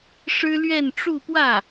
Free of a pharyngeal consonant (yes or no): yes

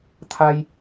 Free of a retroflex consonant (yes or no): yes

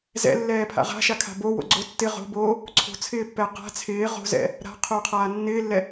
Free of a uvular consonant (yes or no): no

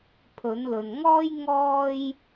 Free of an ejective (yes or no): yes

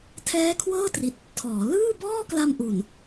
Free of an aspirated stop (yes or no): no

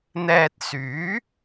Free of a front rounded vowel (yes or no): no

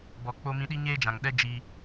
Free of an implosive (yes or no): no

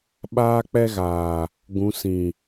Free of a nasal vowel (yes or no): no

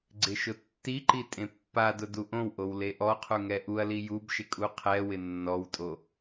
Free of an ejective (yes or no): no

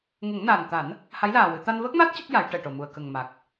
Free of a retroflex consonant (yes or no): no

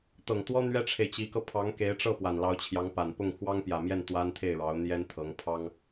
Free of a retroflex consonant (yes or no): no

